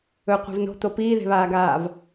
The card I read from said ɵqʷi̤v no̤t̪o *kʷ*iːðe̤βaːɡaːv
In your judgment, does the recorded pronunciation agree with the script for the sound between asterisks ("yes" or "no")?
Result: no